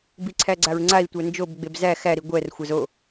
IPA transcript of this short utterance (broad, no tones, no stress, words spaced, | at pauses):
biǀʰæɡ͡ǀaɹŋ͡ǀai̯ tʷænd͡ʒob ɡ͡bebzæ xæ ɾiɡʷɛr xʷazo